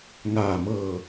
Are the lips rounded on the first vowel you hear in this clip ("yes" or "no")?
no